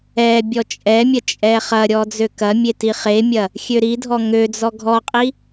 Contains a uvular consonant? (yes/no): yes